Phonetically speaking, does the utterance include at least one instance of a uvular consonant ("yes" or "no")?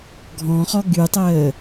yes